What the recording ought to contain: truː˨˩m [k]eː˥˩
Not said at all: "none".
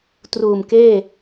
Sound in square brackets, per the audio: k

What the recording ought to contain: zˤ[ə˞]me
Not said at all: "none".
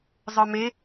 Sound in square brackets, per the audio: ə˞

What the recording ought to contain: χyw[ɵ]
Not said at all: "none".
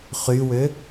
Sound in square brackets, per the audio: ø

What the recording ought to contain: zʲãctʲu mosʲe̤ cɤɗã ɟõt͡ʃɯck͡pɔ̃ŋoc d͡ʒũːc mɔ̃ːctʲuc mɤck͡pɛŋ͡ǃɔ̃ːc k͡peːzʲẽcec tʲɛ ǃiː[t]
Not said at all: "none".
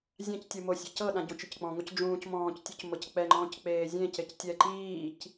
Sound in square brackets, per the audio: c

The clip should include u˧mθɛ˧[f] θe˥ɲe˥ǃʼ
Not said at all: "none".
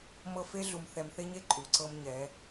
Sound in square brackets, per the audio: m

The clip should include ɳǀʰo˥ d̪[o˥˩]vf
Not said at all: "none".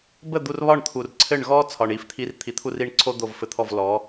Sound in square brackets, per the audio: o˥˩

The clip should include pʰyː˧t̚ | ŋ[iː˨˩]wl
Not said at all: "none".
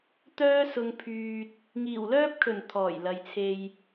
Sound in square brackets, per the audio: iː˨˩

